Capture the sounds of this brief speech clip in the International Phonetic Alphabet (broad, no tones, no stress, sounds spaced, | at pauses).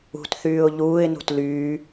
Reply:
ṳ t θ yː ʊ̯ ʎ uː ɪ̯ n ṳ t l yː